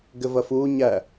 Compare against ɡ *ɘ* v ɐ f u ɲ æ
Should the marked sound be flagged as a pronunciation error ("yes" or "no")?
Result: no